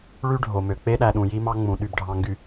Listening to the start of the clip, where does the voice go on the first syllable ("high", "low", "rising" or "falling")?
high